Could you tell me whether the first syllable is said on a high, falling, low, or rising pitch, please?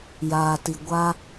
low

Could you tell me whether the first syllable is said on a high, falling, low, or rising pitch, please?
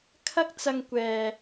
high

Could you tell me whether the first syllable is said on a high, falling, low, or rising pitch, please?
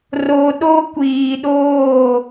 low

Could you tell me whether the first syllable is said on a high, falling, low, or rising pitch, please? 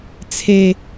falling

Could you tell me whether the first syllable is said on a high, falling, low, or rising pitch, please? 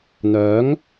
rising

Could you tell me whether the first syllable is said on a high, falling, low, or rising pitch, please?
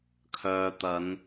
low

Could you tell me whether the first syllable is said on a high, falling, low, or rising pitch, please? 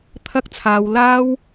high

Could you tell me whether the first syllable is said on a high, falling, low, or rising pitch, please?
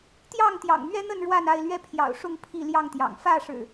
falling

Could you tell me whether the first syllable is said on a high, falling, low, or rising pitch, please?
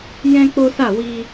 high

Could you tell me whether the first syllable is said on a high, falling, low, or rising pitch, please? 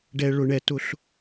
low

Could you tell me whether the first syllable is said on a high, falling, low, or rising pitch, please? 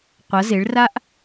rising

